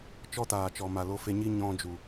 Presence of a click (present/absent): absent